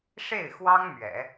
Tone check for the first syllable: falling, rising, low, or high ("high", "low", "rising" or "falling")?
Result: falling